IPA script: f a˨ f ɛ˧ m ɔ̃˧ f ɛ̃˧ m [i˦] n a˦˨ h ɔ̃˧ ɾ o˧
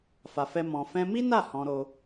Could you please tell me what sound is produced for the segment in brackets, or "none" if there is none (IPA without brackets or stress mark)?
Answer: i˦